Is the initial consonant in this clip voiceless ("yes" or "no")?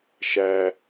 yes